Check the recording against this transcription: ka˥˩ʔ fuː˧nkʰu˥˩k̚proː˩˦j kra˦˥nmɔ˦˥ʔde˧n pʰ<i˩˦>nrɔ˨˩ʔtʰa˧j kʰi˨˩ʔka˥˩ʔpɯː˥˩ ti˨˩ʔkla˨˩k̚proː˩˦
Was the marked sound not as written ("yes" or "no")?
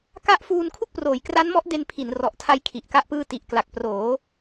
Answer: no